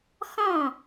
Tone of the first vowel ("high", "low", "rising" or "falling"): falling